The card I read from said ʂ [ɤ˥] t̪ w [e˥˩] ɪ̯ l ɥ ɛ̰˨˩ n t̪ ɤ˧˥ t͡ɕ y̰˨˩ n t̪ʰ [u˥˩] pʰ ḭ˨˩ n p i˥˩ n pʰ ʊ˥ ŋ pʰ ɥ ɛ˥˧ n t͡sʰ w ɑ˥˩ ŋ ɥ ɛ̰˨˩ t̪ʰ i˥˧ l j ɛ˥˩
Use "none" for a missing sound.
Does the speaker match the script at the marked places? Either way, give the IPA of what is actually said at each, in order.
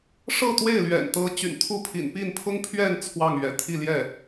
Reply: ɤ˥˧, e˥˩, u˥˩

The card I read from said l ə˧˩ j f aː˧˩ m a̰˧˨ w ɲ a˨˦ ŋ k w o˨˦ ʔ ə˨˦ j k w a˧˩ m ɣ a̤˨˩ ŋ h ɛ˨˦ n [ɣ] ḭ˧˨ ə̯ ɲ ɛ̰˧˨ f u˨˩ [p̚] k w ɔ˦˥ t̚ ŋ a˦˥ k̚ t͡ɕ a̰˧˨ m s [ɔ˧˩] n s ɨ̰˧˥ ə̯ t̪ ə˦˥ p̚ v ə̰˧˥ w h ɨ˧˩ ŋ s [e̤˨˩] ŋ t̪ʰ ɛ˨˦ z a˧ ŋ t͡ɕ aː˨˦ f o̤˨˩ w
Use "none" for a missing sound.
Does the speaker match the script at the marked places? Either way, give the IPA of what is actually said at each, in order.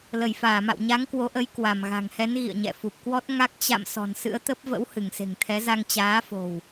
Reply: ɣ, p̚, ɔ̤˨˩, e̤˨˩

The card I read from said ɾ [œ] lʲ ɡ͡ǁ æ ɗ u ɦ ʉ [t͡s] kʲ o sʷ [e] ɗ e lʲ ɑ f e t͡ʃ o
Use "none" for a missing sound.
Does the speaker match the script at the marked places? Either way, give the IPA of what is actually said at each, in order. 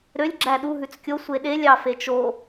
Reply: ø, t͡s, e

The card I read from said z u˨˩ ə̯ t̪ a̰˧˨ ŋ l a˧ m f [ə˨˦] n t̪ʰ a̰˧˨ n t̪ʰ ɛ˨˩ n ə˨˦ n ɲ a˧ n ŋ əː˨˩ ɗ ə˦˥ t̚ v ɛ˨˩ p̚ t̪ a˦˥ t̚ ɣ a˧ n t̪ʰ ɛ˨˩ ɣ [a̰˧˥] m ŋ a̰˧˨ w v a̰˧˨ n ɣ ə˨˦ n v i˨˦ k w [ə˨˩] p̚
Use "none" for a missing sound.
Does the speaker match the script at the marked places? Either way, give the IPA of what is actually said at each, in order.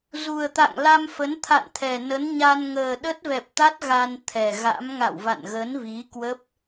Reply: ə˨˦, a̰˧˥, ə˦˥

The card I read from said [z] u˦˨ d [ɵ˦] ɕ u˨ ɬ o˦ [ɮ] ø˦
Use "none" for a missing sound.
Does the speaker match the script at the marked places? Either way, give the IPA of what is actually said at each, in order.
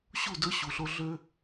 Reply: ɕ, ɵ˦, ɮ

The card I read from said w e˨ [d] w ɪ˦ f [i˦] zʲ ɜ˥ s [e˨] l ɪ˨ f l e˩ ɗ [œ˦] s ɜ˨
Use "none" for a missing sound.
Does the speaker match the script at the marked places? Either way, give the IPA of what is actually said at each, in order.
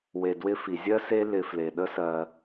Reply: d, i˩, e˦, ə˦

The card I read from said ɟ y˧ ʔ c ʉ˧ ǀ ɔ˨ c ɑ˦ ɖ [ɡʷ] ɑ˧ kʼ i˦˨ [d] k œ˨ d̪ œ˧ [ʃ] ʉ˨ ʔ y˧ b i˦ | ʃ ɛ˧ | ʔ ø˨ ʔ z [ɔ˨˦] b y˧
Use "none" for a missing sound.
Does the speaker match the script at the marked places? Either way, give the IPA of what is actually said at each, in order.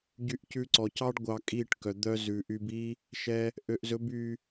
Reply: ɡʷ, ʈ, z, ɵ˨˦

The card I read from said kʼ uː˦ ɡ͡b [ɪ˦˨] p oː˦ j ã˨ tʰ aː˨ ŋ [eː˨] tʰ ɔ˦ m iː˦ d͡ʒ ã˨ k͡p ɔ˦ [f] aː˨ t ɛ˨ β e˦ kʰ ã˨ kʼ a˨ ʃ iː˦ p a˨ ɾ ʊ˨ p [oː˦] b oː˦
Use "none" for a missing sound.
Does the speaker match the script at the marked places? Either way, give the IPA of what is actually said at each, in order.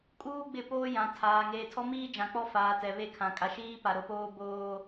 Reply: ɪ˦˨, eː˨, f, oː˦

